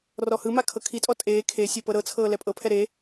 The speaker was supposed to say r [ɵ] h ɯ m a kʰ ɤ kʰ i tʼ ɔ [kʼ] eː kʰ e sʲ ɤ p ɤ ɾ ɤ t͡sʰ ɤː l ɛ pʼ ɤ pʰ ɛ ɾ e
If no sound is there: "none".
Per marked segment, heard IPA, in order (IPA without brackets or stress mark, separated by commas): ɔ, tʼ